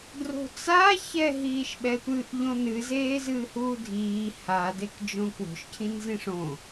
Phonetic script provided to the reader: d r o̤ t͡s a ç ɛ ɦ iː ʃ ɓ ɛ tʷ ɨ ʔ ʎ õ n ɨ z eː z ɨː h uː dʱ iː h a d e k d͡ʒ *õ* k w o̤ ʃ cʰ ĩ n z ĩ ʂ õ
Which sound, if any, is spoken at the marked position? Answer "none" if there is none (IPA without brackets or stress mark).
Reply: õ